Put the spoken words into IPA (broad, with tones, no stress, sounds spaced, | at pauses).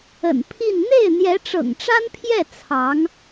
ə̰˨˩ n pʰ i˥˧ n n̪ e˥˩ ɪ̯ n̪ j ɛ˧˥ ʈ͡ʂ ɤ̰˨˩ ŋ ʈ͡ʂ a˥ n pʰ j ɛ˥˩ t͡sʰ ɑ˧˥ ŋ